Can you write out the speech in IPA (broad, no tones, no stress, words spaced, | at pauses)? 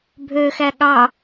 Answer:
bʱøxæ ɠɑ